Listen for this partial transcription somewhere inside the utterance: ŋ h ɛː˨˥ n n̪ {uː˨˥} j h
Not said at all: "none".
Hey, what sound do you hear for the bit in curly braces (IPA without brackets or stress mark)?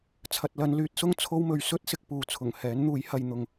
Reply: uː˨˥